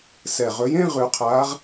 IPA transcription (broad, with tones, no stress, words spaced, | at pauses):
sɛ˨˩ʁɵ˨˦jẽ˥˧ ʁʉ˨˩˦qʰaː˨˦ʁ